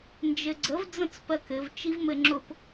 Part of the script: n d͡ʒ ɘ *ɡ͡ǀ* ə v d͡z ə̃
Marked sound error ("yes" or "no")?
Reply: no